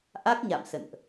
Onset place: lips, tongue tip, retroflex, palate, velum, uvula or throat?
throat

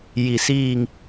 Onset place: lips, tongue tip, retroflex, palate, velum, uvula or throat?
palate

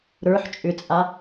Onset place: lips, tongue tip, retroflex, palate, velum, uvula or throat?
tongue tip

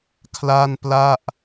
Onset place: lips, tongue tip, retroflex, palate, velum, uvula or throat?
velum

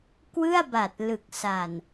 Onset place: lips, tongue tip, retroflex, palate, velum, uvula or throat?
velum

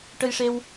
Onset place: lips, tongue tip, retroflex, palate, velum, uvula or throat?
retroflex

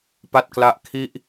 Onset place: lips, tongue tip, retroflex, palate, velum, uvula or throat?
lips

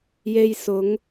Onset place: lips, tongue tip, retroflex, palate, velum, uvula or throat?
palate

